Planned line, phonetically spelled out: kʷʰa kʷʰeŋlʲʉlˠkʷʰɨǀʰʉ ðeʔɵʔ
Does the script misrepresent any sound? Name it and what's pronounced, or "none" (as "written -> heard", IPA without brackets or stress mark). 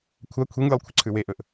ð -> w